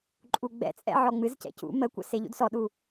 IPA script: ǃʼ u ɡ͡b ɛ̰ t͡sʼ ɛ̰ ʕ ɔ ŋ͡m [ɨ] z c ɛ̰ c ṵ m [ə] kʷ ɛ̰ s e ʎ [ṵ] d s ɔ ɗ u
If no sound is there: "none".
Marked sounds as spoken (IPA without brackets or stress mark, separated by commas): ɨ, ə, ṵ